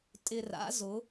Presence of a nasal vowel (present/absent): absent